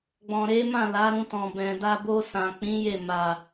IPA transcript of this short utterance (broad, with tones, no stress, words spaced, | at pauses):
ɡ͡bɔ̃˨ɾe˨˦mã˦˨ la˨˦ɾũ˧tɔ̃˨ bɛ̃˨da˧ bo˧ sã˨k͡pĩ˨˦ je˦˨ma˨